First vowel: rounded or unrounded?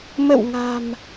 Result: unrounded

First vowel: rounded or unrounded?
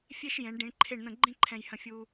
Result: unrounded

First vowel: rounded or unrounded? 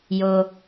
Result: rounded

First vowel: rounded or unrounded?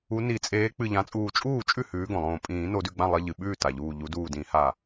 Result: rounded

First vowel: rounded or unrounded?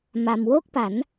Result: unrounded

